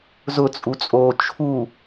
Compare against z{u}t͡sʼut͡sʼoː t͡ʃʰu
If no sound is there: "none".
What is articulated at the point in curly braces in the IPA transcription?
ʊ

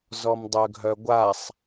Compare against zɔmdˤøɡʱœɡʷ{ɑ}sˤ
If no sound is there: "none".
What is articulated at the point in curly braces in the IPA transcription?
a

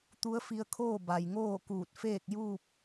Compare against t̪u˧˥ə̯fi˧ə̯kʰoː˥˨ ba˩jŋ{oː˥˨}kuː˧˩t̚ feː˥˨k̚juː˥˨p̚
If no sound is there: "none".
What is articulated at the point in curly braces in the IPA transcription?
oː˥˨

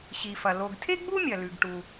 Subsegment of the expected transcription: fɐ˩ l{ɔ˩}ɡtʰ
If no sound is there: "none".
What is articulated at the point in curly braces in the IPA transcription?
o˩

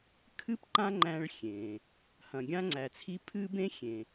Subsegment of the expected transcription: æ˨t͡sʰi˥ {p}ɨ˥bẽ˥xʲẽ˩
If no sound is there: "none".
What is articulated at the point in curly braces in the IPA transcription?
pʰ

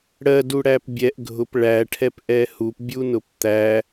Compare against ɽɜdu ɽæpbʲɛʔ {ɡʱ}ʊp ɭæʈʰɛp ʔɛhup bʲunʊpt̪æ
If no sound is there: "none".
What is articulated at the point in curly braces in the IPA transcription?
ɡʱ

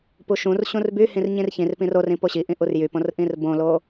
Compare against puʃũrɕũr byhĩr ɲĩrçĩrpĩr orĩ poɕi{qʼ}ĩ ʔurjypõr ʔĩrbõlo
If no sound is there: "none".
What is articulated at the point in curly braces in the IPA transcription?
ʔ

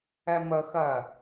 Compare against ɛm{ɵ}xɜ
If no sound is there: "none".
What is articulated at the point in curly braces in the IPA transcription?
ə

